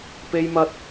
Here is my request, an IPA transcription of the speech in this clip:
p e˥ j m ɐ˥ t̚

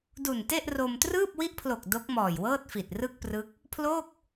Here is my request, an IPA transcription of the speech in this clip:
d u˨˩ n t e˥˩ ʔ r o˧ m t r ɯː˥˩ p̚ w i˦˥ ʔ pʰ l o˨˩ k̚ d o˦˥ k̚ m ɔː˨˩ j w ɤː˥˩ t̚ f i˨˩ t̚ r ɯ˥˩ k̚ p r ɯ˦˥ k̚ | pʰ l oː˥˩ k̚

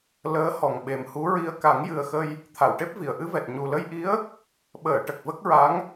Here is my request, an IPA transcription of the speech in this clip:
l əː˧˥ h ɔ˨˩ ŋ ɓ e˨˩ m h u˧˥ ɹ i˧ ə̯ k a˨˩˦ ŋ j ɨ˨˩ ə̯ x ə˧ j | t̪ʰ a˨˩˨ w ʈ e˦˥ p̚ v i˨˩˨ ə̯ ʔ ɨ˧˥ v ɛ˨˩ t̚ ɲ u˨˩ l ə˧ j ʔ i˧˥ ə̯ | ɓ əː˨˩˨ ʈ ə˨˩ k̚ v ə˦˥ k̚ ɹ a˧˥ ŋ

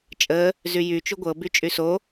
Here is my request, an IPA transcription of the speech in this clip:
t͡ʃʼ ə | z y j y t͡ʃ u ɡʷ ɤ b y t͡ʃʼ y s o

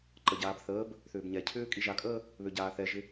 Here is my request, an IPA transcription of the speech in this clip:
ǃ ə ɟ aː b θ əː b | θ ʏː b ɲ ɛ cʰ ʏː kʼ i ʒ a kʼ əː | β ø ɟ aː θ ɛ ʒ ɪ

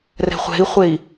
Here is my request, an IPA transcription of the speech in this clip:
r ɛ̤ χʷ ɛ̤ i̯ χʷ e i̯

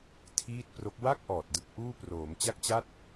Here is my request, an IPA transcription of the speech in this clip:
tʰ iː˥˩ t̚ p r o˦˥ k̚ w a˥˩ k̚ ʔ ɔː˨˩ t̚ d ɯ˦˥ k̚ ʔ uː˥˩ p r oː˩˦ m t͡ɕ a˥˩ k̚ t͡ɕ aː˥˩ t̚

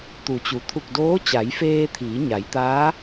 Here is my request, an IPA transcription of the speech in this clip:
t̪ u˩˧ t͡ɕ u˩ t̪ʰ u˧˩ k̚ d oː˧˥ t͡ɕ a˩˧ j f eː˧ t̪ʰ iː˩˧ ɲ a˩˧ j t̪ aː˧˥

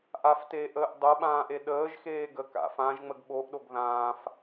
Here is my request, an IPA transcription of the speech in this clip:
ʔ a f t eː ʔ əː ʔ dˤ o ɓ ãː ʔ e ɗ əː ʒ x eː ɡ ə k a̰ f ã ʒ ŋ͡m ə ɡ ɓ o ʔ ɗ o ɡ ð ãː f

